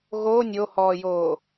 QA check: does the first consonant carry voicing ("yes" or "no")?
yes